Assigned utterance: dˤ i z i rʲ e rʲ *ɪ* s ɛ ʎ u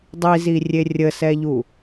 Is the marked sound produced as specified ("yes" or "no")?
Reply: no